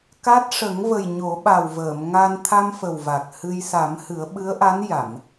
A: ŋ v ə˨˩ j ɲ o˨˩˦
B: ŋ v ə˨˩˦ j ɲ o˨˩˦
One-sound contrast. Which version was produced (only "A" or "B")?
A